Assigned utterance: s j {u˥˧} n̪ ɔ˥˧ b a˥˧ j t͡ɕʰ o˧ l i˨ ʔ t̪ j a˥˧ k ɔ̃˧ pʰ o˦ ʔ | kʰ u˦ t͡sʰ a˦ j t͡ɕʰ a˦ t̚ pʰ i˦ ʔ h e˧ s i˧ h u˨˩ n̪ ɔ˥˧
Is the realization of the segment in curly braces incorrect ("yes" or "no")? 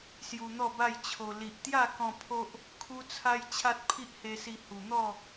yes